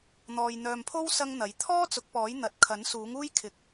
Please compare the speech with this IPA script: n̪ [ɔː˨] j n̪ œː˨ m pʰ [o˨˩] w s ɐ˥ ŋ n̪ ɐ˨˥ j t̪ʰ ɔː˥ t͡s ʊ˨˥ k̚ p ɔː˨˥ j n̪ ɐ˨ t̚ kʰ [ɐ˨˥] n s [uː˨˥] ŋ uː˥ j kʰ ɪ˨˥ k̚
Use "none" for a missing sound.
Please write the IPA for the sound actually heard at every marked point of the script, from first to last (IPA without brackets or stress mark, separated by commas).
ɔː˨, o˥, ɐ˨˥, uː˨˥